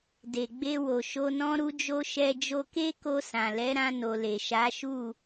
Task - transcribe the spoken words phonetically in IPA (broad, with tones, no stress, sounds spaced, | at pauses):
d e˨ ɡ͡b e˧ w o˨ ʃ o˧ n ɔ̃˦ ɾ u˦ d͡ʒ o˦ ʃ ɛ˧ d͡ʒ o˧ k e˦ k o˧ s ã˨ l ɛ˨˦ ɾ ã˧ n o˨ l e˨ ʃ a˨˦ ʃ u˦˨